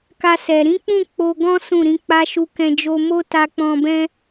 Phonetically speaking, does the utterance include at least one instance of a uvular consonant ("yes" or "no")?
no